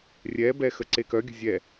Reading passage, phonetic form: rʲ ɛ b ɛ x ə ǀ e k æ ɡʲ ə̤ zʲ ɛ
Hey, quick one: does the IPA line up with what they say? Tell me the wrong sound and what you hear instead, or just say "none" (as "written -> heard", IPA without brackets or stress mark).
æ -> œ